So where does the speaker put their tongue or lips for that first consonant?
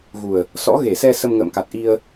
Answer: velum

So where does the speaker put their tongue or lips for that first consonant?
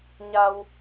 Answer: palate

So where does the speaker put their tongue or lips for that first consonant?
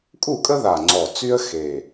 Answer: velum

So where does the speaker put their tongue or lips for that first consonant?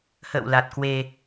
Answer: throat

